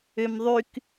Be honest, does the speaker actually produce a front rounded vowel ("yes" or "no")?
yes